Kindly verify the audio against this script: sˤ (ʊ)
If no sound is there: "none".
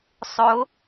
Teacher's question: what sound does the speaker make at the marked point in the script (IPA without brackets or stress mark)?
ʊ